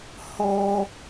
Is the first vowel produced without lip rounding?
no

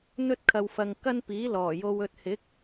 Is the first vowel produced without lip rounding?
no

